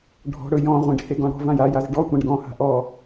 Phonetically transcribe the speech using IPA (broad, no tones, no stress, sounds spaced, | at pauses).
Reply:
ɖʱ ɔ̤ ɽ ɵ j ɔ̃ ʁʷ ẽ ɖ h e ɡ ɔ̃ ɽ ɔ̤ v ã j a j a z ɖ ɔ tʷ ã ɖ ɡ ɔ̃ h a̤ ʔ ɔ